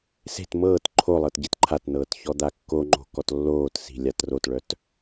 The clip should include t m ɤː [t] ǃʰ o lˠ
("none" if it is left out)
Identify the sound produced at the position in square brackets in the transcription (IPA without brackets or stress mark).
t